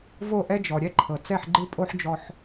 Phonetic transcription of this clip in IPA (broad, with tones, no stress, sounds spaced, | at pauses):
v o˥˩ ʔ ɛ˥ d͡ʒ ɔ˩ ɾʲ ɛ˥˩ ǃʰ ɤ˩ t͡s ɛ˥˩ ħ ɡ͡ǃ ɯ˥ pʼ o˥ ħ d͡ʒ ɔ˧ ħ